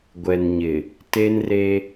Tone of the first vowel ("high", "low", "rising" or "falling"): low